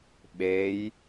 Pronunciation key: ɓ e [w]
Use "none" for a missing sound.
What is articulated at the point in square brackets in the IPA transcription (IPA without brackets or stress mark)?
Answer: j